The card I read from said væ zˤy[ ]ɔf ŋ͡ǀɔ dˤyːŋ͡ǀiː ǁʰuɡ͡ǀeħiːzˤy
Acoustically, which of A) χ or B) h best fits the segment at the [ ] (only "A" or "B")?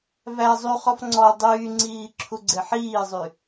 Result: A